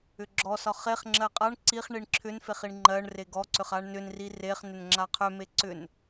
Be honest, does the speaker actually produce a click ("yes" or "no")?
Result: yes